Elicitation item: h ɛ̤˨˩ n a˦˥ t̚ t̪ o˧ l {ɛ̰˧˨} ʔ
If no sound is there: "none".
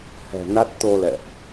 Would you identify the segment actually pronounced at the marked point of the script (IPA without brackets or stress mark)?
ɛ̰˧˨